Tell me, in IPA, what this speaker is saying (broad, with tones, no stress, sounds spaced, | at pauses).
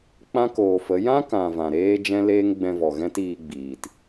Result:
k͡p ã˦ k oː˨ f ə˨˦ j ã˦ k ã˨ v ã˨ ɾ eː˦ d͡ʒ ɛ̃˦ l eː˦ ŋ ɡ͡b ɛ̃˧ v ɔ˨ ɣ ɛ̃˦ t iː˧ ɡ͡b iː˨ t